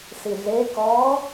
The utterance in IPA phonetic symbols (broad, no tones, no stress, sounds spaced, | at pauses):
s i ɮ e k ɔː